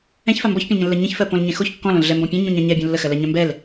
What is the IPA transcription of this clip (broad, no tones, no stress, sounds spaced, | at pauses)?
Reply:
ɛ̃ ç f a m b ɔ ç pʲ ə̃ l ɲ ə̃ lː ɜ ɲ ə̃ ç f ɜ p õ l ɲ ɛ̃ x o ç kː ɔ̃ l õ l ɮ ɛ m b ɔ̃ pʲ ɛ̃ ɲ ũ ɲ ã ɲ ɛ bʲ õ lː ə x ɜ l ɜ ɲ ã m b ɛ l